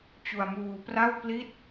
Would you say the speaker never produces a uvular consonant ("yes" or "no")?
yes